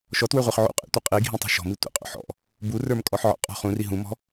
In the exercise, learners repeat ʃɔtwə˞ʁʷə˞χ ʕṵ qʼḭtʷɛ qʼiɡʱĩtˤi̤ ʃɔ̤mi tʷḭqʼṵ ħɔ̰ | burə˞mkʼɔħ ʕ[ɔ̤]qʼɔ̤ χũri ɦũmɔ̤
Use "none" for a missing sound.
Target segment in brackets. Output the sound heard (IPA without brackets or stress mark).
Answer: ɔ̰